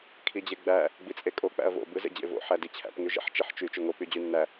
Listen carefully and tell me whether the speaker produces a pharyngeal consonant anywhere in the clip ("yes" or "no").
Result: yes